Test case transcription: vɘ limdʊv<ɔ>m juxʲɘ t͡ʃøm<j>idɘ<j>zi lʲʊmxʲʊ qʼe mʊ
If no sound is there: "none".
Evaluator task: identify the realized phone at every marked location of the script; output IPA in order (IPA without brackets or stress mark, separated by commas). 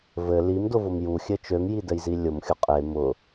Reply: ʊ, j, j